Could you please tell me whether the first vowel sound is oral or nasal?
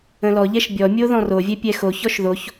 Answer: nasal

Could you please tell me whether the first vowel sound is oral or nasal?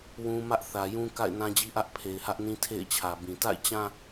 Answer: nasal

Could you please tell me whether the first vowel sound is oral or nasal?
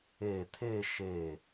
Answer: oral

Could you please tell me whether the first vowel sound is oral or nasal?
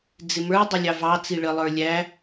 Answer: oral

